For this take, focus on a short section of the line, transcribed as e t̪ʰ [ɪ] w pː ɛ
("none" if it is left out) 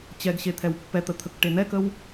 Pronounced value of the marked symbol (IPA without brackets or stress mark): ɛ